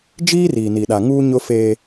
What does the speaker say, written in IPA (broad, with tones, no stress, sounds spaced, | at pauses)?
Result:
d͡ʒ iː˦ r iː˨ n i˨ ɗ a˨ ŋ uː˦ ɲ ʊ˦ f eː˦